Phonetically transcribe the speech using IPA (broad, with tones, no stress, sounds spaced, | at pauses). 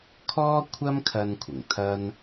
kʰ ɔː˥ kʷʰ ɐ˥ m kʰ ɐ˧ n kʷʰ ɪ˨˩ ŋ t̪ʰ ɐ˥ n